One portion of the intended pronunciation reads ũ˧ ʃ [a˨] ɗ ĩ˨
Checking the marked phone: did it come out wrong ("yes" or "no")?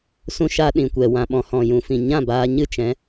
yes